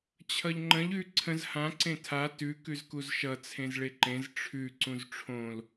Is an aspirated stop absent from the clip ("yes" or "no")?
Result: no